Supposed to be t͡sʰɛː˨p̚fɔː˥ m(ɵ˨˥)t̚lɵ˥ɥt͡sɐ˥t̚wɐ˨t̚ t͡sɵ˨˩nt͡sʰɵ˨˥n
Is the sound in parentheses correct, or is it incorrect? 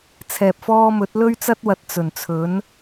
correct